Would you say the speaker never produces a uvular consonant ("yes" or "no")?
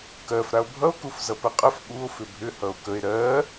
no